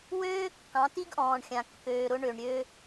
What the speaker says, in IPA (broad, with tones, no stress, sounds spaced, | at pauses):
w øː˦ kː ɑ̃˨˦ t i˦ ɡ ʔ ɔ̃ː˨ ɳ xʲ ã˨ kː øː˨ ɾ ʊ˦ ɳ ø˨ ɳ ɾʲ ø˦